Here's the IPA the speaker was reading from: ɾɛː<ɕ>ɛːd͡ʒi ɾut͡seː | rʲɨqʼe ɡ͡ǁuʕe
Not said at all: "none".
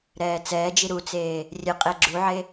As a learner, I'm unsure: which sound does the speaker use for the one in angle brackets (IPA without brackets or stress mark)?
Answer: t͡s